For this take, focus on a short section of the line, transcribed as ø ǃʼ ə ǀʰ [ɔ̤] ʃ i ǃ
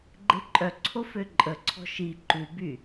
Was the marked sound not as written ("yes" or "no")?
no